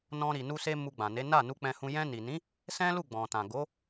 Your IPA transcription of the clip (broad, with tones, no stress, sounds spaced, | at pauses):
n ɔ̃˧ ɾ i˨ n u˧ s e˧ m u˧ ɡ͡b ã˨ n e˨˦ n a˦˨ n u˧ k͡p ɛ̃˧ h ũ˧ j ɛ̃˧ n i˨ n ĩ˨˦ | s ɛ̃˦ l u˦˨ ɡ͡b ɔ̃˨ t ã˨ ɡ o˨˦